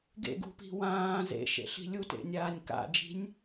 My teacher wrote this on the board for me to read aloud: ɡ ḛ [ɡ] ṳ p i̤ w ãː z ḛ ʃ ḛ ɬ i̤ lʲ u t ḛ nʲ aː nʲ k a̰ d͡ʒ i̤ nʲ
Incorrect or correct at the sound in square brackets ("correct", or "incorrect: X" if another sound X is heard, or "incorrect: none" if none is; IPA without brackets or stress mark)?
correct